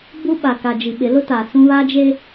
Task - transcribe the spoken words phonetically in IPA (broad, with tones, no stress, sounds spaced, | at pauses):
b u˦ ɓ a˨ k a˨ d͡ʒ i˨ ɓ ɪ˨˦ l ʊ˦ t a˨ s ũ˦ β a˦ d͡ʒ e˦